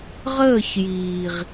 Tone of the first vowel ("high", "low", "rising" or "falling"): falling